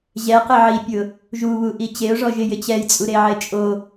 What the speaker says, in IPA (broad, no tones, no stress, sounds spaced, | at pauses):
ʑ ɛ q ɪ ʕ i pʲ ʊ | ʒ u β u ʔ i t͡ɕ e ʊ̯ ʐ ɔ ʒ ɪ j ɪ t͡ɕ ɛ j t͡sʼ u ɾ e ʕ e t͡ʃʼ o